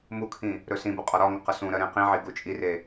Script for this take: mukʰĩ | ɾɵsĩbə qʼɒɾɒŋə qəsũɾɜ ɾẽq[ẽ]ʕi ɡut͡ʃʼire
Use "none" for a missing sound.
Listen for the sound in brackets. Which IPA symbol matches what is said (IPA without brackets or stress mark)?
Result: ĩ